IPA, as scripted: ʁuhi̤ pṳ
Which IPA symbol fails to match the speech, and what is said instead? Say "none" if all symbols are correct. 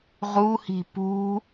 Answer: none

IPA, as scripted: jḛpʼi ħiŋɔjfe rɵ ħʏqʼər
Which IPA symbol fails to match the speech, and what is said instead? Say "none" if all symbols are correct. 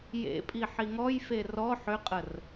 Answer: ɵ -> ɔ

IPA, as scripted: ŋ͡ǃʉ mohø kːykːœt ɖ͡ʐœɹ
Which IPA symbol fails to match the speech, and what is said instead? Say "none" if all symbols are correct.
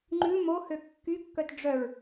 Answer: none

